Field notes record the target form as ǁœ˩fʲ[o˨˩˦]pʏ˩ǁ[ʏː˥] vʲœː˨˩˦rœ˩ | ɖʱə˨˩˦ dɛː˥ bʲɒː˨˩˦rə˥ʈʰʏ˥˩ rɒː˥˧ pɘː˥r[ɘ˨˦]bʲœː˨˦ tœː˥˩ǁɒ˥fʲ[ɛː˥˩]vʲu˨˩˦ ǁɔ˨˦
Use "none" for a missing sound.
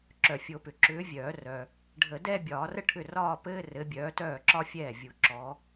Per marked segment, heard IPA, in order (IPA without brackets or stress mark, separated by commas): o˨˩˦, ʏː˨˦, ɘ˨˦, ɛː˥˩